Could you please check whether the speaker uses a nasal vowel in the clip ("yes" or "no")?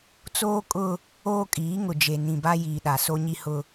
yes